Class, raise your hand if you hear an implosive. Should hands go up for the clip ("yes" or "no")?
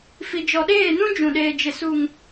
yes